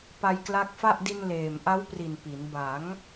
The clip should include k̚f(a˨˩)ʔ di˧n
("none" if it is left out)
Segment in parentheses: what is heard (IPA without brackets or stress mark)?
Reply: a˥˩